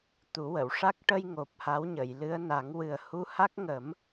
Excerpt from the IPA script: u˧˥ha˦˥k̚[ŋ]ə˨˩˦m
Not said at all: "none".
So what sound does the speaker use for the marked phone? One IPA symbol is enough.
ŋ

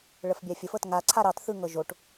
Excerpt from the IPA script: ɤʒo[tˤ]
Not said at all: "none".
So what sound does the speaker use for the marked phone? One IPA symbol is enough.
ʈ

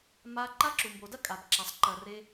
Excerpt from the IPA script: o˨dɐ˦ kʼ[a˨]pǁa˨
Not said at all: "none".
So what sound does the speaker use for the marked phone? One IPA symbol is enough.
a˨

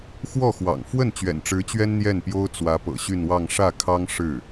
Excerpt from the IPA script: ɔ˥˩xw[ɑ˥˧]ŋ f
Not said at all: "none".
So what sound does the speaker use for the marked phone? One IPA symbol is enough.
ɑ̰˨˩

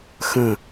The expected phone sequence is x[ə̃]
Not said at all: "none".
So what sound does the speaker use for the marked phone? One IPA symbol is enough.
ə̃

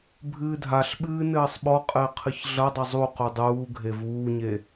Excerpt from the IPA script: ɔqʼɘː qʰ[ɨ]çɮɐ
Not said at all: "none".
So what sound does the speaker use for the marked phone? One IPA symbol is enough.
ɨ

